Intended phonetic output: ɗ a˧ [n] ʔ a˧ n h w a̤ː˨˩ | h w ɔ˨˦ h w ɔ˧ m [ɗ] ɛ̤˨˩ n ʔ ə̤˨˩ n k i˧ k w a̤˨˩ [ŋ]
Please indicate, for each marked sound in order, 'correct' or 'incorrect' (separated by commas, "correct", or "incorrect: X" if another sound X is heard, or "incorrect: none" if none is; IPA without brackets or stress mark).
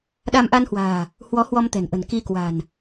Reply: incorrect: m, incorrect: t̪, incorrect: n